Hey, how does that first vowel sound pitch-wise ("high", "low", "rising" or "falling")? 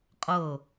falling